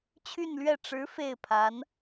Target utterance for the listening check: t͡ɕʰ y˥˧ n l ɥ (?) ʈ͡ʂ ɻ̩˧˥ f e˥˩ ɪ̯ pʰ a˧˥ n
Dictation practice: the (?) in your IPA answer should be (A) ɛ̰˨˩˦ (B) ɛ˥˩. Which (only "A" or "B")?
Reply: B